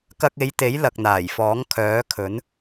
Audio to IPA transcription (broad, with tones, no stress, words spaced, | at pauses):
kɐ˧k̚e˨˧jt̪e˨˥j lɐ˨k̚n̪aː˨˩jfɔː˨˥ŋ kʰœː˨˥kʰɵ˨˥n